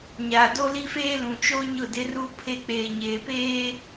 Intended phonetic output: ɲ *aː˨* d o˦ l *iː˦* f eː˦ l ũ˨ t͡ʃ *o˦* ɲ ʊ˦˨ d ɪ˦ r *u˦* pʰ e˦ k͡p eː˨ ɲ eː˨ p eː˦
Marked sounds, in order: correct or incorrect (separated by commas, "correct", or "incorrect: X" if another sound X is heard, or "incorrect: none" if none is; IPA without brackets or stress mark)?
correct, incorrect: i˦, correct, correct